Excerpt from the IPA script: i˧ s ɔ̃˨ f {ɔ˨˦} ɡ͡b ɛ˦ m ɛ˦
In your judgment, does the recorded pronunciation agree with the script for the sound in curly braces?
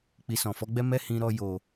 yes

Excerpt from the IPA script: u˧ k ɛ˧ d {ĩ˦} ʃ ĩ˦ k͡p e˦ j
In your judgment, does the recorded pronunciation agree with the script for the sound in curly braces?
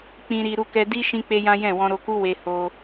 no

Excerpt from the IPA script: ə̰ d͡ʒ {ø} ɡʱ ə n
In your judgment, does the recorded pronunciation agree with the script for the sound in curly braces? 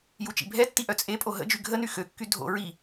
no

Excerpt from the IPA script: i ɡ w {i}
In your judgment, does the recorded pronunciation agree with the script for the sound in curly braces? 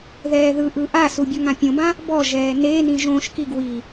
yes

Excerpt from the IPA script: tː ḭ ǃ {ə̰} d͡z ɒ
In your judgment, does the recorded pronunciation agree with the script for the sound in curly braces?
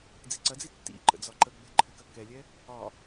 yes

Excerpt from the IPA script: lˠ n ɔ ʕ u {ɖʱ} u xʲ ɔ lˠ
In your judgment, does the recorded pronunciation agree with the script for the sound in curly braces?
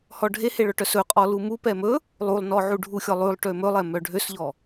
yes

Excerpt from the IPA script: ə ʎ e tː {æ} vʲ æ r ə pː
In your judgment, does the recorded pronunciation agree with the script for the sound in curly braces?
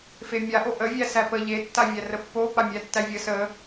no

